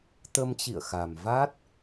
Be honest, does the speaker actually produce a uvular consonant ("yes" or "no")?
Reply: no